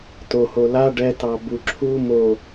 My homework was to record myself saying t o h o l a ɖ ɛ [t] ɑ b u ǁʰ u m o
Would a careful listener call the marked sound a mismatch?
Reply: no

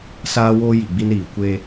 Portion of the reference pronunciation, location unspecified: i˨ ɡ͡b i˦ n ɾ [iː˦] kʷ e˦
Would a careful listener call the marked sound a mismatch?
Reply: yes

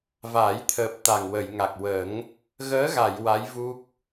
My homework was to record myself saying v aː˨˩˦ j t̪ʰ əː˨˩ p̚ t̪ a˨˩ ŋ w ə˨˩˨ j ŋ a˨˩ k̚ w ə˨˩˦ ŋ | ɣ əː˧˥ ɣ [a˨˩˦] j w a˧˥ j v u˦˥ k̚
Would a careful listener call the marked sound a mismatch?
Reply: yes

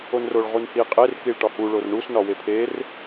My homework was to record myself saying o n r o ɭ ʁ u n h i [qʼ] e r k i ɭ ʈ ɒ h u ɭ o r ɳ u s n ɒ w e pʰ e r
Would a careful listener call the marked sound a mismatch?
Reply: no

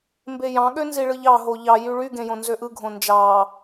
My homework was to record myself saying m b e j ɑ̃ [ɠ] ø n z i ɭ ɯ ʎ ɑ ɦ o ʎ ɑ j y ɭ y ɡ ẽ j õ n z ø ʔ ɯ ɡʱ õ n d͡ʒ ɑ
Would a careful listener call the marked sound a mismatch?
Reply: no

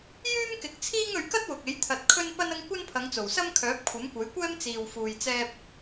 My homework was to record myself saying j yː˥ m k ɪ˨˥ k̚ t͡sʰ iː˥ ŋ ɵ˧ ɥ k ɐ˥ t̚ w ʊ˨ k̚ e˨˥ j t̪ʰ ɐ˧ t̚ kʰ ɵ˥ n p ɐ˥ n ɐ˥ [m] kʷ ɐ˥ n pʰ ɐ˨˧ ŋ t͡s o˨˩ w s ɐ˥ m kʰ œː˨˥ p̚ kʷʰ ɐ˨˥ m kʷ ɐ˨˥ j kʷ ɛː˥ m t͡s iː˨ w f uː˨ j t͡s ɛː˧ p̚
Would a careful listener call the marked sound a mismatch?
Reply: yes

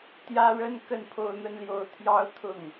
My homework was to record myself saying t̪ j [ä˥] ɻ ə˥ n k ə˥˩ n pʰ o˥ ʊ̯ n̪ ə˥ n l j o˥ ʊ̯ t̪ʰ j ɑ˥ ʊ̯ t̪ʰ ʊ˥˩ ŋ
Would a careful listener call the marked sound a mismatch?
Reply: no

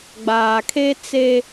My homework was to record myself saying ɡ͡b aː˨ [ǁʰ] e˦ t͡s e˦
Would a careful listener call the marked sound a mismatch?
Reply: yes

